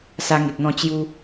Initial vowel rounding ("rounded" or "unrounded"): unrounded